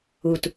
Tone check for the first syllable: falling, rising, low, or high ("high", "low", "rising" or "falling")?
low